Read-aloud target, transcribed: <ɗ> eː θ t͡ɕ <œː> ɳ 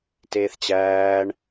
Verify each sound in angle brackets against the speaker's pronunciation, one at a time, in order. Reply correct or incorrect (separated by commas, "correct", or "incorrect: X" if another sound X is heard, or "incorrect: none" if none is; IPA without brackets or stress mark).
incorrect: t, incorrect: æː